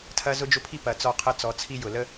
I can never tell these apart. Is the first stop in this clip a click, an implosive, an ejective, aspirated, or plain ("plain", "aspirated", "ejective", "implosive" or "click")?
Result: aspirated